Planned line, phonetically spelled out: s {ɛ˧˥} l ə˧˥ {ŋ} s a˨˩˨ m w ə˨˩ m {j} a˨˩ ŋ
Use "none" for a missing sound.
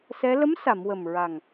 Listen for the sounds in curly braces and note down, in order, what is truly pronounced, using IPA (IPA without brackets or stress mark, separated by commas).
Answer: ɛ˧˥, m, ɹ